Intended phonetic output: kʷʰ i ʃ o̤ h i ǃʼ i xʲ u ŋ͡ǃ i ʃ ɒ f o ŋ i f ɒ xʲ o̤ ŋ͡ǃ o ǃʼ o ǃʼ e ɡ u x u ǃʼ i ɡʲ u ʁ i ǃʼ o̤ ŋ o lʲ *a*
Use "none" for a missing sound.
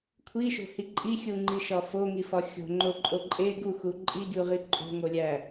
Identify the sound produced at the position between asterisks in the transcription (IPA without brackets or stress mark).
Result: æ